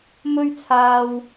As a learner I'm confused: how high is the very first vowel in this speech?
mid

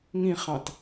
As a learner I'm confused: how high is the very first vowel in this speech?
high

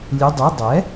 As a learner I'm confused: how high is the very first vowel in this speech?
high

